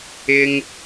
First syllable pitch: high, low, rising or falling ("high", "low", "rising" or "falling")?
high